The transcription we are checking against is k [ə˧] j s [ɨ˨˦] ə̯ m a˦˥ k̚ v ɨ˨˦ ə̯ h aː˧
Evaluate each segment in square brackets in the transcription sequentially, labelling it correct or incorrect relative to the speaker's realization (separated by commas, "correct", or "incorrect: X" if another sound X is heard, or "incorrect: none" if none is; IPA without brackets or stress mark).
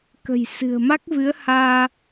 incorrect: ə̤˨˩, incorrect: ɨ̤˨˩